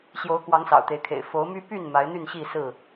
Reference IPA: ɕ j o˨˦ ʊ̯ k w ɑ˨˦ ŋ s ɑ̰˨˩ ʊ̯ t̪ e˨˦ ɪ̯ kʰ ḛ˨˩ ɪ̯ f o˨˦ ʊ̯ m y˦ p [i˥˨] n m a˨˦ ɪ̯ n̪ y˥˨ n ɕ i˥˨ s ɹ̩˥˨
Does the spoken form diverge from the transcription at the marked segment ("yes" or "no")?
yes